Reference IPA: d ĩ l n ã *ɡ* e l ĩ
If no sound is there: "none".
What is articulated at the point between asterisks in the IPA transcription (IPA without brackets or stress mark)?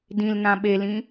ɓ